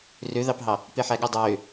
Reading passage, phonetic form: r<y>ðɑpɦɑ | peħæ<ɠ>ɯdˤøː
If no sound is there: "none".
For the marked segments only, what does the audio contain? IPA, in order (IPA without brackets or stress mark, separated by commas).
ø, ɠ